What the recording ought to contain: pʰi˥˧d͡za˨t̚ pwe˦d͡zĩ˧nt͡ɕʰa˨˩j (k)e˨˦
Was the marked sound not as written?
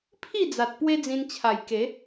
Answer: no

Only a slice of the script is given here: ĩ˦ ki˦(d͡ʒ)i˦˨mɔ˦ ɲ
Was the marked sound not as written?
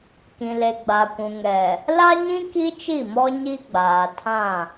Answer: yes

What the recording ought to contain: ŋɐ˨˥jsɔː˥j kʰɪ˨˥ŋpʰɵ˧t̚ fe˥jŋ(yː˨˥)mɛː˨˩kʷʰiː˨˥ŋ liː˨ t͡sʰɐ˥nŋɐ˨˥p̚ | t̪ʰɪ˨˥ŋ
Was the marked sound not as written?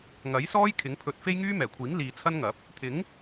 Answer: yes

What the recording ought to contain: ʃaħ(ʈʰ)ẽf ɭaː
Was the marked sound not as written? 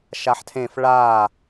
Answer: yes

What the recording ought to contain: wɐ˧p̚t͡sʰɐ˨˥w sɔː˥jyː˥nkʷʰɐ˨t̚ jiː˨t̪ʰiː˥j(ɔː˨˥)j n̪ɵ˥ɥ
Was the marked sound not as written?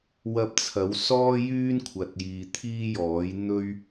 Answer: no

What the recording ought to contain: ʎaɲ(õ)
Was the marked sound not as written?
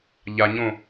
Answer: no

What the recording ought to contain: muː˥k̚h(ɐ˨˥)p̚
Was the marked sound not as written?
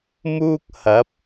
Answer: no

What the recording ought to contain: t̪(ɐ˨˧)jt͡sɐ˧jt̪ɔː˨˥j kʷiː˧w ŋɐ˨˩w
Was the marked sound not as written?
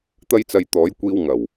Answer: yes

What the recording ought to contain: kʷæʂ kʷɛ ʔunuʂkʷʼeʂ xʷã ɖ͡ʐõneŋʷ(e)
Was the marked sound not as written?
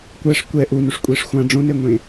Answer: yes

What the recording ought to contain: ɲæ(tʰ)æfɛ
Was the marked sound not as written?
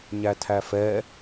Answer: no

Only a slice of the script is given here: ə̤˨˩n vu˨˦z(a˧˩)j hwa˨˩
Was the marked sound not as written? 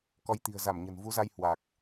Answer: yes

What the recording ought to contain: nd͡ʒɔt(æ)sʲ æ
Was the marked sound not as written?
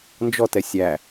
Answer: yes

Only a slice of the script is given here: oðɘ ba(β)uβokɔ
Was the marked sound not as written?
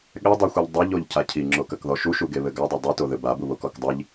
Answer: yes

